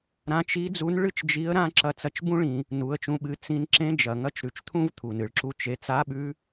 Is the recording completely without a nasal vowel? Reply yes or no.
no